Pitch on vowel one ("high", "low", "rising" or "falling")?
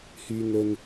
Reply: high